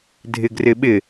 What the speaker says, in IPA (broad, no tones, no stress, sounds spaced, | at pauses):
dʱ ɪ ɡ r ɪ ɓ ɪ